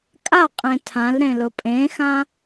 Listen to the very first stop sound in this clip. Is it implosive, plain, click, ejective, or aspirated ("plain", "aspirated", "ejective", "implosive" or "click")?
ejective